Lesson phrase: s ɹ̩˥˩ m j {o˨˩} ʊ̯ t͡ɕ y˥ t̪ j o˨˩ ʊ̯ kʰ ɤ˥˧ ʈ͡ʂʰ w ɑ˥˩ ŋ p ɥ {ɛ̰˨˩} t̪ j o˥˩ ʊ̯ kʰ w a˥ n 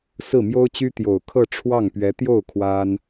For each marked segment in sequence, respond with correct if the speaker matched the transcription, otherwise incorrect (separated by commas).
incorrect, incorrect